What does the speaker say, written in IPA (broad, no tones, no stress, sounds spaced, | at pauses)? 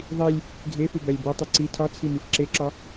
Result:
ðˤ i lʲ | ɡʱ e f u b æ lʲ b o tˤ i ǀ i tʰ ɒ t͡sʰ i m i f ǁ e ǁ ɒ